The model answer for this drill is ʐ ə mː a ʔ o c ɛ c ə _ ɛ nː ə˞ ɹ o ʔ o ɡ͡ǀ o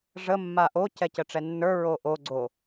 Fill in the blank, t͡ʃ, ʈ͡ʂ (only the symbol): ʈ͡ʂ